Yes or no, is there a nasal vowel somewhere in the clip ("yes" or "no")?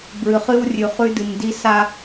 no